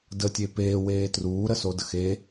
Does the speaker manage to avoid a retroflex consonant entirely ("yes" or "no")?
yes